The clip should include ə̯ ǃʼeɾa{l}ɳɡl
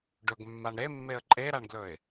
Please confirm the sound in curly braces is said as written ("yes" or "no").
no